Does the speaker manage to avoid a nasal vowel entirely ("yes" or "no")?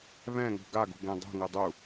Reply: no